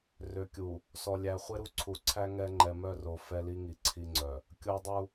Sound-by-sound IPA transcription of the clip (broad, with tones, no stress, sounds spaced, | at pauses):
r ø˨ kʲ u˨ | s ɔ˨ lʲ æ˨ χʷ e˦ ɾ u˦ ǀʰ u˨ ǀʰ æ˦ ŋ ɛ˦ ŋ͡ǃ ɛ˨ m œ˦˨ r o˨ f ɛ˦ l i˦ ŋ i˨ ǀʰ i˦ ŋ͡ǀ œ˨ | kʲ o˦ dˤ u˦